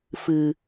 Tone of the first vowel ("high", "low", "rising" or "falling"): low